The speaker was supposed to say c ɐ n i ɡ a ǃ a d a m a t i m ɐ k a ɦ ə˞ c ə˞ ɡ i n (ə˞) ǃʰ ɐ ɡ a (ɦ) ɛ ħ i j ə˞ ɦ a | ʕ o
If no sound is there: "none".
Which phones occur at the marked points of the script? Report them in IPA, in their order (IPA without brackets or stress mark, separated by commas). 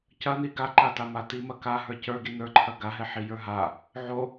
ə˞, ɦ